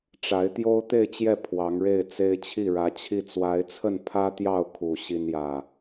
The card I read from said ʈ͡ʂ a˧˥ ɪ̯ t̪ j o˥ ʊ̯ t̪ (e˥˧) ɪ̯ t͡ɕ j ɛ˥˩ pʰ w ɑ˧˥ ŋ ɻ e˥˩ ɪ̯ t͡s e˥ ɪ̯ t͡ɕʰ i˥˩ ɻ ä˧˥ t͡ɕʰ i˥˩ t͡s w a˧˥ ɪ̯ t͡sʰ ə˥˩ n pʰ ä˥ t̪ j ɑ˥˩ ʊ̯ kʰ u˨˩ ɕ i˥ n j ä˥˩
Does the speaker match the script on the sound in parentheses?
yes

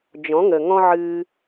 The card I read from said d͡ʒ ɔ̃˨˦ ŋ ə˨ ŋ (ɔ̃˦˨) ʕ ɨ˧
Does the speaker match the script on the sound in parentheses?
no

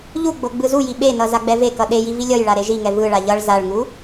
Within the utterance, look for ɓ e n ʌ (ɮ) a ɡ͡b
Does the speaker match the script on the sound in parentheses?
no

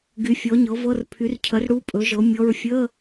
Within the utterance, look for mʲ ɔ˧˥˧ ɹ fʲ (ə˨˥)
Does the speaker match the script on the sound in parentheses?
no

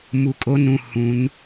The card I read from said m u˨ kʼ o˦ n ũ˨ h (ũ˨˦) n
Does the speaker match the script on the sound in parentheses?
yes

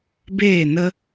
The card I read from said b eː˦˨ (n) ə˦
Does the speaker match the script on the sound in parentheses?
yes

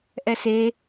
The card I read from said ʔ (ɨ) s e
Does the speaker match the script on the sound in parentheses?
no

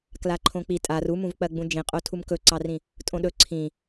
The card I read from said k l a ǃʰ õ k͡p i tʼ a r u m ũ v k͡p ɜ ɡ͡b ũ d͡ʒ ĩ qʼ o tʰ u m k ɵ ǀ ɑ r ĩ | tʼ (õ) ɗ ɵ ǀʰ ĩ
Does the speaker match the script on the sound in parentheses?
yes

